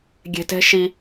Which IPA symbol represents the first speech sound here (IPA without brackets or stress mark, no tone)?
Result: ɡʲ